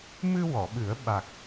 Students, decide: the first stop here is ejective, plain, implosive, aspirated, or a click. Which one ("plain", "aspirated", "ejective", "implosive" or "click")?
implosive